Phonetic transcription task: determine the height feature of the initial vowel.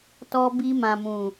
mid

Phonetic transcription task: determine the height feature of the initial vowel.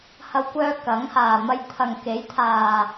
low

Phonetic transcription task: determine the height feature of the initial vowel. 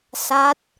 low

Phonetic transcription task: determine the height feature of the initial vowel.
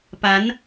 low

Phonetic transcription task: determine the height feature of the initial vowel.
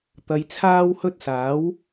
low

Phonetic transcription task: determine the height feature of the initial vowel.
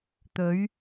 mid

